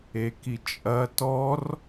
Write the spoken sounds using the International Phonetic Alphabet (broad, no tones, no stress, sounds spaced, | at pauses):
e k i t͡ʃʼ ɐ t ɔ r